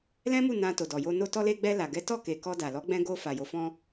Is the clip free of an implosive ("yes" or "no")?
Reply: yes